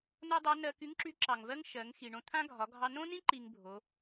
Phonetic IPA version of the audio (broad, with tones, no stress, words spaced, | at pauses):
no˥dˤa˧˥ nɜ˧ky˧˥ŋǁy˧˥ ǁɑ˩ŋvɜ˥ŋ ʃɜ˩˧ŋ xi˩ɳõ˧t̪ʰã˥ɡʱɒ˩˧ ɡʱɑ˥ nõ˥nĩ˥ ǃi˧ŋbʱo˩˧